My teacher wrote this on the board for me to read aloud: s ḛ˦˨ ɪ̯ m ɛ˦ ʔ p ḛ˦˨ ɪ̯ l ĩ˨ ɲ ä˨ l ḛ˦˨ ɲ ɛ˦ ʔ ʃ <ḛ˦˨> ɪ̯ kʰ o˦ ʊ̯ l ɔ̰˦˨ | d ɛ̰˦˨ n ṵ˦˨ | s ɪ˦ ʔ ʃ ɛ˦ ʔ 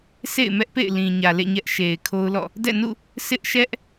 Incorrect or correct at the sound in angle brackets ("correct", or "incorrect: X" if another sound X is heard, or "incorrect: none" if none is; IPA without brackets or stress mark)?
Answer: incorrect: e˨